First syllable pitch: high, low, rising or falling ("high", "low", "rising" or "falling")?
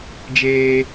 high